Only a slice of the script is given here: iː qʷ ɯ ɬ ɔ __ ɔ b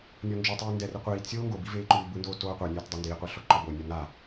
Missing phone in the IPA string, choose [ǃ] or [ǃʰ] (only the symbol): ǃ